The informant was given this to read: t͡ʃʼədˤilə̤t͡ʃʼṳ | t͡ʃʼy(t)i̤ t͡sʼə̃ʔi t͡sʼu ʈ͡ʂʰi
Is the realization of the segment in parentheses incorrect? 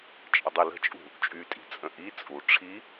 yes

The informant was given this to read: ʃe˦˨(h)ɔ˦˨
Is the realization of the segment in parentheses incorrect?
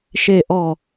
yes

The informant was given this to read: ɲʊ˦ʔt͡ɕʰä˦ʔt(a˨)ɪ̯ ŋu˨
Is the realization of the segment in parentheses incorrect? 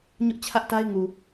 yes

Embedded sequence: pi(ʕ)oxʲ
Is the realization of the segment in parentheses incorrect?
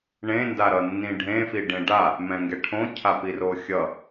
yes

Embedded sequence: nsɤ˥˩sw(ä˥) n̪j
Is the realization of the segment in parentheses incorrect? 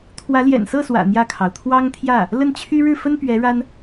yes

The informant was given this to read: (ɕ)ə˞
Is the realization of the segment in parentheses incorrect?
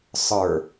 yes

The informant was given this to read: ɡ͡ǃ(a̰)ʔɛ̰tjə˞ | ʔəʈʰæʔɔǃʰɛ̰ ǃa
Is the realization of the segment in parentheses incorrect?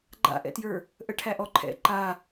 no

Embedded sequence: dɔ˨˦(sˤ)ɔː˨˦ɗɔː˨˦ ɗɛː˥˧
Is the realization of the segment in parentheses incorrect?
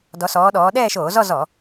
yes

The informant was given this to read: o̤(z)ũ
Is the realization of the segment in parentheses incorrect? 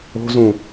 no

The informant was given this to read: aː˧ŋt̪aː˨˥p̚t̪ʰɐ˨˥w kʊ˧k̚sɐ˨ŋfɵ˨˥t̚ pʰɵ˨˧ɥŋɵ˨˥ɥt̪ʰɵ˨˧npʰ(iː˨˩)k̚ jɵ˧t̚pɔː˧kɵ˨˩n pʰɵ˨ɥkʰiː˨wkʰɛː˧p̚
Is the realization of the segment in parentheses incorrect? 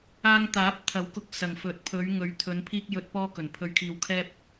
yes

